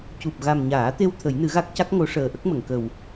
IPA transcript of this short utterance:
c u˨˩ p̚ ɣ a˨˩ m ɲ aː˨˩˦ t̪ e˧ w t̪ʰ ə˨˩˦ j n ɨ˨˩˦ ɣ a˦˥ k̚ c a˦˥ k̚ ŋ o˧˥ ʂ əː˨˩ ʔ ə˦˥ k̚ m ə˨˩˨ ŋ k ə˨˩ w

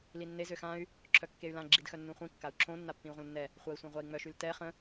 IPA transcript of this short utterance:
l i nː e z ø x ã y̯ | ǁʰ œ kː e y̯ l ã ɡ͡ǁ i d x œ nː ũ χʷ ĩ kː a u̯ ǁʰ õ nː a pː ĩ u̯ ʁʷ ə̃ l nː ɛ | χʷ a i̯ sʷ ã ʁʷ a i̯ ŋ͡m œ ʃ y l t ɛ χ ə̃

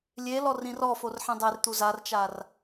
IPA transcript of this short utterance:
lʲ e l ɔ r ĩ r ɔ f o r ħ ĩ dˤ e r t̪ u z a r t͡ʃ a r

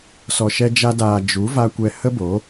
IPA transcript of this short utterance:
s ɔ˨ ʃ ɛ˧ d͡ʒ a˧ d aː˨ d͡ʒ u˨˦ v a˧ kʷ ɛ˧ h ə˦ b o˨˦

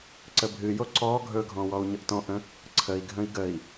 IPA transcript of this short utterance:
ǀ ə bʱ ɨ j o ǀ ɔ ɡʱ ɵ ɡʱ ɔ̃ w ɔ u̯ ɲ ə ʔ t ɔ̃ ʔ ə̃ | ǀʰ ə i̯ ɡʱ ə̃ i̯ ɡ ə i̯

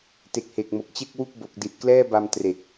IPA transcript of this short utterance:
t e˨˩ k̚ h e˨˩ k̚ m o˨˩ k̚ t͡ɕ e˥˩ k̚ w u˥˩ k̚ b o˨˩ k̚ d i˨˩ t̚ k l ɛː˥˩ b a˧ m t r e˨˩ k̚

